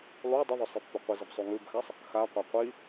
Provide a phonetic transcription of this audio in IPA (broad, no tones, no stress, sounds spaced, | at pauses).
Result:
lˠ u dˤ ɐ ðˤ ɵ sˤ i pː o qʷ ɨ z ɐ b sˤ u ŋ ʉ b x a sˤ | x a qʷ a qʷ i